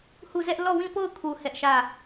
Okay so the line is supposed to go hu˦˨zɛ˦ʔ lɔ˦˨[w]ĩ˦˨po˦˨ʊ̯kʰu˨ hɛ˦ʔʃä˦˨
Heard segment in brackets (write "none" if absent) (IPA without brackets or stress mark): w